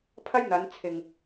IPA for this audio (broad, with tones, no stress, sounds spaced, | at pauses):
pʰ ɐ˥ j n̪ ɐ˨˧ n t͡sʰ ɪ˨ ŋ